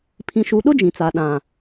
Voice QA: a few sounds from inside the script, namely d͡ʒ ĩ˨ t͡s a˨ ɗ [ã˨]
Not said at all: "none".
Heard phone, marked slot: ã˨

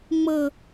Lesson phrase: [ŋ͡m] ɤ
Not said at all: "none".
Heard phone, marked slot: ŋ͡m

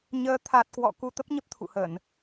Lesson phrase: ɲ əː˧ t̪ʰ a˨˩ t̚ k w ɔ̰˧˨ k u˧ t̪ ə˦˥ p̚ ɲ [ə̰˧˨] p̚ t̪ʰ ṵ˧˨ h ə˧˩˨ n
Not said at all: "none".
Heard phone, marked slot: ə˦˥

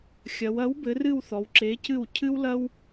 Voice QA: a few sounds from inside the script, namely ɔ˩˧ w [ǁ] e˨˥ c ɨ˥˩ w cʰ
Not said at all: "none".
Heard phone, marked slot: ǁ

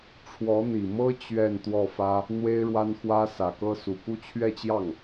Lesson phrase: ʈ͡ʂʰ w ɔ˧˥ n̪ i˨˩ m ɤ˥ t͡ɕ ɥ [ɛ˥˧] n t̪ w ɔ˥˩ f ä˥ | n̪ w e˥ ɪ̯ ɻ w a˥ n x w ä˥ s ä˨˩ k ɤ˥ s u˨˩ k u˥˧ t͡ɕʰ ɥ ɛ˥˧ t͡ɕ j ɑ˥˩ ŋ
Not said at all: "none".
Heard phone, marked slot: ɛ˥˧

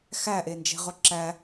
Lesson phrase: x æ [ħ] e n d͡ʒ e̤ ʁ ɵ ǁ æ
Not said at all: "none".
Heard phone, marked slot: ʔ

